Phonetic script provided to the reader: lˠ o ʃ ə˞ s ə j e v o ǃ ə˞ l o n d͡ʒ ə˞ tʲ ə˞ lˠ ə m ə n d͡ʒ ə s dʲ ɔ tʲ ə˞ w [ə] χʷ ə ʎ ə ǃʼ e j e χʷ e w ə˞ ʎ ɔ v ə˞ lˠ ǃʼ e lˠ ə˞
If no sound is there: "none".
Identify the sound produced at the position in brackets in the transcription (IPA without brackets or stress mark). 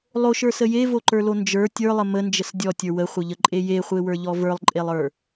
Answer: ə